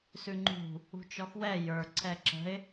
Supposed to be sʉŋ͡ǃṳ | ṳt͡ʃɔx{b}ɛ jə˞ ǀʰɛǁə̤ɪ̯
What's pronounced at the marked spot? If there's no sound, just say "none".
w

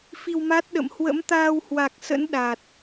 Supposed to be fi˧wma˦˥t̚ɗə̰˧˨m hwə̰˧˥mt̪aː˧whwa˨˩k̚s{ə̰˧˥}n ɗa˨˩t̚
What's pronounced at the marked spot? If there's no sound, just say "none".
ə̰˧˥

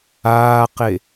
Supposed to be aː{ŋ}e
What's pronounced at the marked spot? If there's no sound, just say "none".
q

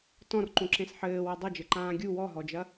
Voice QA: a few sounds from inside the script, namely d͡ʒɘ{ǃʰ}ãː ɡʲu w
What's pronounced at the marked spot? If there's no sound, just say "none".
ǃ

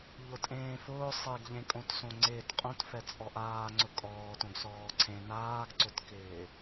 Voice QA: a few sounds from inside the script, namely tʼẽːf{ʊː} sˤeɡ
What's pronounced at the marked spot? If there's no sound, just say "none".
ʊː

